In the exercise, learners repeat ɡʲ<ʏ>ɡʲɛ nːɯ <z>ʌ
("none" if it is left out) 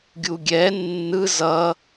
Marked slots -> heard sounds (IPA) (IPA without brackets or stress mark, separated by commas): u, z